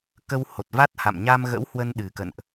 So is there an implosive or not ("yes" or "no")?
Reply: yes